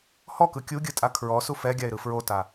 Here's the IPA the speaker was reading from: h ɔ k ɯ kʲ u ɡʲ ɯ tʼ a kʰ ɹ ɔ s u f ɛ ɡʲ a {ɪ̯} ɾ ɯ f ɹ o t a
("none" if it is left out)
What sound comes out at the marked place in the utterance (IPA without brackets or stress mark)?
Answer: ɪ̯